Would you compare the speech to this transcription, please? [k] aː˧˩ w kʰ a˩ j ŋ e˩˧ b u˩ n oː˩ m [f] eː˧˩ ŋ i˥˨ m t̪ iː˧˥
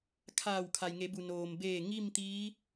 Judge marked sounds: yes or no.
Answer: no, no

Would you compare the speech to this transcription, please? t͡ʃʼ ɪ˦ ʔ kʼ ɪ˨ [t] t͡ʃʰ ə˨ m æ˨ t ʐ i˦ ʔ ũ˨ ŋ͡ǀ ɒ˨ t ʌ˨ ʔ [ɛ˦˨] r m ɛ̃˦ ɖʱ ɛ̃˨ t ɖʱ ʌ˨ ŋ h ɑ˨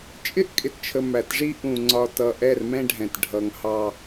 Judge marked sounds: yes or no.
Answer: yes, yes

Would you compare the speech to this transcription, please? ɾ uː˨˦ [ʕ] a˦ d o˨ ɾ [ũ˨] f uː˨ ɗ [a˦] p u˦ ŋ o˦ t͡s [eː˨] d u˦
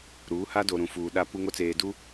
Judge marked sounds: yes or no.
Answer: no, yes, yes, yes

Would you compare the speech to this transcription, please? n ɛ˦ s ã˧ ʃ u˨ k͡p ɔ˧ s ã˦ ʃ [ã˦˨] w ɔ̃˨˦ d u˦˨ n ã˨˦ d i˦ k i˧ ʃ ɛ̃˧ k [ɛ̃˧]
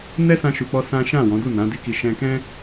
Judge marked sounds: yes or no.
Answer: yes, no

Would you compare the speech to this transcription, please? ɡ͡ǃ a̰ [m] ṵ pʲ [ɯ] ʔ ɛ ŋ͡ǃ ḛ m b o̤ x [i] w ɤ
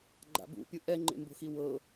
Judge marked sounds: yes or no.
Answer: no, yes, yes

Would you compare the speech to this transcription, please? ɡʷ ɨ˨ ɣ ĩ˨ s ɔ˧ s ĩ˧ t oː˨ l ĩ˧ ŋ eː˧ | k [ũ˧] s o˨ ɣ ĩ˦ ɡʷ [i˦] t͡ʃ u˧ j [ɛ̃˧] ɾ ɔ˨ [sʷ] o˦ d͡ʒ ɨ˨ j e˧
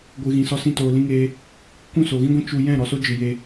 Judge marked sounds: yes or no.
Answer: no, no, no, no

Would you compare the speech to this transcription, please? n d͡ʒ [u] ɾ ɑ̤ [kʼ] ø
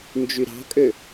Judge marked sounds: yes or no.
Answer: no, yes

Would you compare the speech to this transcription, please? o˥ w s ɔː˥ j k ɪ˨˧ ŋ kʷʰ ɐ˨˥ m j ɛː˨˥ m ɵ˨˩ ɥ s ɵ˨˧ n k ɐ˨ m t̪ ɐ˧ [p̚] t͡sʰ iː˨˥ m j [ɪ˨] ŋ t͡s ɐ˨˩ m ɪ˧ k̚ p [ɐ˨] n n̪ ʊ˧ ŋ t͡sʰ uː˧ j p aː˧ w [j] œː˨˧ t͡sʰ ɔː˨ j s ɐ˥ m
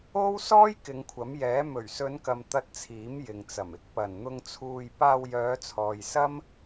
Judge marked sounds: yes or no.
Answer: no, yes, no, yes

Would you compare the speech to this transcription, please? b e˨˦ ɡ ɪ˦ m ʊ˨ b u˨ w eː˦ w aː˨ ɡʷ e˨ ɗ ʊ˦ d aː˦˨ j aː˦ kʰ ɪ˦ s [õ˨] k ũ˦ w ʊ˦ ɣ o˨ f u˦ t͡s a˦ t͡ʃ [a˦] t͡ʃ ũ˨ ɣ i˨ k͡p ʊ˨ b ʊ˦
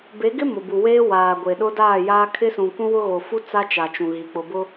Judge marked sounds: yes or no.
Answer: no, no

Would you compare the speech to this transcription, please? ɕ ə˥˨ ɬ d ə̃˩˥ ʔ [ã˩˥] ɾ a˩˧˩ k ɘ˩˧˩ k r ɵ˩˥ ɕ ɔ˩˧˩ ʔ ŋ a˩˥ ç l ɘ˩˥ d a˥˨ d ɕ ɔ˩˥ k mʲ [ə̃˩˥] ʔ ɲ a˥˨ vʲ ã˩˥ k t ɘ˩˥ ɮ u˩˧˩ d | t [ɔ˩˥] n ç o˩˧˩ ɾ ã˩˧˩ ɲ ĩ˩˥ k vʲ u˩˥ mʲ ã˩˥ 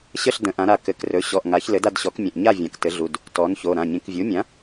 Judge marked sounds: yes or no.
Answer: yes, no, yes

